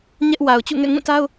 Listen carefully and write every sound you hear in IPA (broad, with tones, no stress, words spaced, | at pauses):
ɲɛ˦ʔ wa˨ʊ̯t͡ɕṵ˦˨ŋɛ̰˦˨ ŋũ˦˨ta˦ʊ̯